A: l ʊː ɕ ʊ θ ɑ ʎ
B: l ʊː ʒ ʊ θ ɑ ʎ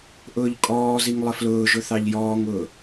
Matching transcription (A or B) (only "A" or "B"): B